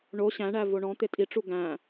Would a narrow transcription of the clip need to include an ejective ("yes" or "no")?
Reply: yes